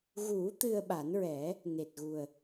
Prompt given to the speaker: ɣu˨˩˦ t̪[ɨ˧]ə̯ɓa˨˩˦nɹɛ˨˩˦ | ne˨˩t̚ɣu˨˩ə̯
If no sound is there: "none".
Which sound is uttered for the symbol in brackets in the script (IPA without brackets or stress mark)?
ɨ˧